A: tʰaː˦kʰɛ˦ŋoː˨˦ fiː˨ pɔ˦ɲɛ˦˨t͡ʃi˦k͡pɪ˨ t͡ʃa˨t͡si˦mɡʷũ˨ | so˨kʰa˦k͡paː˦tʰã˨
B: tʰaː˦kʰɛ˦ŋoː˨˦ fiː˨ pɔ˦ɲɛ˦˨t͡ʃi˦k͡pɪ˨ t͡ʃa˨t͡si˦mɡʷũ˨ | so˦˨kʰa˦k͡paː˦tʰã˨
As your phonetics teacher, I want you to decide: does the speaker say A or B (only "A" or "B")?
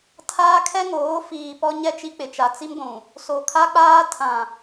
A